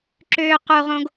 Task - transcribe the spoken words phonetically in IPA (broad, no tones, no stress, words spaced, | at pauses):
ǁø qoʁõɡ